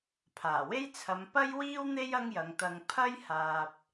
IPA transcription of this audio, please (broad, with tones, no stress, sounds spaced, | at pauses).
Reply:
pʰ aː˨˩ w e˥ j t͡sʰ ɐ˨˧ m p ɐ˥ j w iː˥ w n̪ e˥ j ɐ˥ ŋ j ɐ˨˧ ŋ t̪ ɐ˧ ŋ pʰ ɐ˥ j h aː˨ p̚